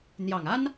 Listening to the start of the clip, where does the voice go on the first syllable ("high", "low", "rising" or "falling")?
low